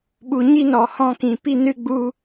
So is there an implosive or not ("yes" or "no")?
yes